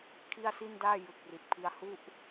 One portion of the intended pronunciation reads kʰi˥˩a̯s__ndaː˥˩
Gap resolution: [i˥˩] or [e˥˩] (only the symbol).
i˥˩